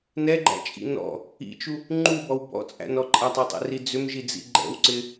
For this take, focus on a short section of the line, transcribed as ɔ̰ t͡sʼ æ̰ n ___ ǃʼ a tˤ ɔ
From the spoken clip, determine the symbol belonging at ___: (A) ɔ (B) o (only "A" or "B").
A